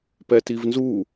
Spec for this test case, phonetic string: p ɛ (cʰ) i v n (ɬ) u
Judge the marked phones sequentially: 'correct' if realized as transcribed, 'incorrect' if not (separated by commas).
incorrect, incorrect